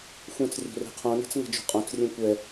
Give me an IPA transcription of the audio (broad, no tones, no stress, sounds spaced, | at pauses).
xʷ ẽ t͡s rʲ o̤ r e̤ qʰ õ n e̤ t͡s ŋ ɛ̤ d͡ʒ o̤ qʼ õ t͡s rʲ ẽ kʷ ɛ